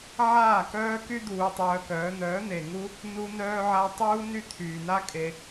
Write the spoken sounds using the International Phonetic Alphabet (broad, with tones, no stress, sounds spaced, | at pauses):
ʕ aː˦˨ k œː˦ k y˦ d̪ uː˧ tˤ œː˧ k œː˨˦ n̪ œː˨˦ n̪ e˨ ŋ u˦ | n u˧ n œː˧ ʕ a˧ tˤ uː˦ n y˦ t̪ʰ yː˨ n a˦ kʼ e˧